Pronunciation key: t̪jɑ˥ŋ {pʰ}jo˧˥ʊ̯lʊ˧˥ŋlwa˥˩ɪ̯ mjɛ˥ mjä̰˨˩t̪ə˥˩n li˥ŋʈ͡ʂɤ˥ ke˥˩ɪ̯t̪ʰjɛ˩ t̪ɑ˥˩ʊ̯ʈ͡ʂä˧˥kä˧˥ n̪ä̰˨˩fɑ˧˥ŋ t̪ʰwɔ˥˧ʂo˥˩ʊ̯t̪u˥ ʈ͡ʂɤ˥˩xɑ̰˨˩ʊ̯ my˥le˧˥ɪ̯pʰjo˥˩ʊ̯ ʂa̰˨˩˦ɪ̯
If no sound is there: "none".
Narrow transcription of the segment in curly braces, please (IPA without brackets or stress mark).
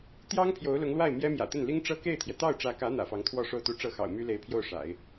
pʰ